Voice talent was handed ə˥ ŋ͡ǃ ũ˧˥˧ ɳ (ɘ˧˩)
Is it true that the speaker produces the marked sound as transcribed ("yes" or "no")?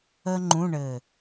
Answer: yes